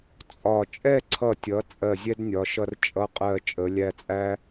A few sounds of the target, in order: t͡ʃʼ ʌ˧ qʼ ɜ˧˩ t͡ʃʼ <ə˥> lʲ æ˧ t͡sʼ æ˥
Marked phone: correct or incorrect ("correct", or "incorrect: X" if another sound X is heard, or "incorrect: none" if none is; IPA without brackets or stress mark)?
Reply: incorrect: ə˩˧